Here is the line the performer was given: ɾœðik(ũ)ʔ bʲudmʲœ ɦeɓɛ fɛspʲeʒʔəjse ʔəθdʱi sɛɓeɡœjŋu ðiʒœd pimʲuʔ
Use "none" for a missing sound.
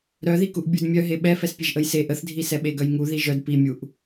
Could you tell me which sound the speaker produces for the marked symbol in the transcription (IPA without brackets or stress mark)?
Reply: u